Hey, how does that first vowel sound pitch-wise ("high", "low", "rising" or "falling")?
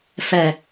low